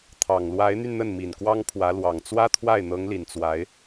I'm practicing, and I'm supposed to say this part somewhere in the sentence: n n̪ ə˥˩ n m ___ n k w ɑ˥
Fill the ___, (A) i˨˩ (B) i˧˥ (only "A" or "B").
A